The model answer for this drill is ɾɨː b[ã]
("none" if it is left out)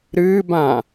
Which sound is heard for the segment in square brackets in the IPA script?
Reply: ã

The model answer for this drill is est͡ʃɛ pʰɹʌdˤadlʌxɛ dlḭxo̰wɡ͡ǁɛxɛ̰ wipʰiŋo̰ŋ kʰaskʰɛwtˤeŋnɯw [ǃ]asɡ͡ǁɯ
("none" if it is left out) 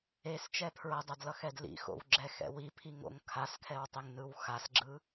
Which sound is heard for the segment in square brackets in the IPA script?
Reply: x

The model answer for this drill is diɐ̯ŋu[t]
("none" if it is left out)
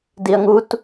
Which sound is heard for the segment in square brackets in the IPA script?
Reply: t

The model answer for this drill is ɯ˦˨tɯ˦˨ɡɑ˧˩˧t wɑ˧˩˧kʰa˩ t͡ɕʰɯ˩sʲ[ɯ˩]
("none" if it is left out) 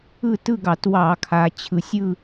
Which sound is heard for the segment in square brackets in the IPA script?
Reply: ɯ˦˨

